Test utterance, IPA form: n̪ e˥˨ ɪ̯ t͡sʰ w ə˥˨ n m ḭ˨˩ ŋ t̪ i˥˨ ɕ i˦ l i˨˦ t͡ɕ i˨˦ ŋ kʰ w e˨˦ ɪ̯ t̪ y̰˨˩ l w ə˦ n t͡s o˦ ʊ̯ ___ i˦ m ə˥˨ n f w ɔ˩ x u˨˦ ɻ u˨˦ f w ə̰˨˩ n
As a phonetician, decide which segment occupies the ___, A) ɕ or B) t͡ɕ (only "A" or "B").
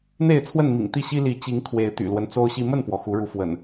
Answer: A